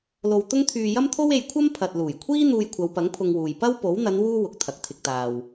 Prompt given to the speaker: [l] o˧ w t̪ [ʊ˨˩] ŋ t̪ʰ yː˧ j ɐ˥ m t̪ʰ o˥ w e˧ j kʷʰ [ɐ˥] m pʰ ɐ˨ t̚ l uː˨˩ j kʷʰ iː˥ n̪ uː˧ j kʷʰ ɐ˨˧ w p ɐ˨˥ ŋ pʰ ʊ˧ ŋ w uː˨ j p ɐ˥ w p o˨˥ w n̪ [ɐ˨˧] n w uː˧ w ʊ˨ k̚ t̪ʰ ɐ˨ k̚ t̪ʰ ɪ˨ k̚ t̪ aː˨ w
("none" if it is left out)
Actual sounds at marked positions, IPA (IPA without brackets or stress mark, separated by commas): l, ʊ˥, ɐ˥, ɐ˨˧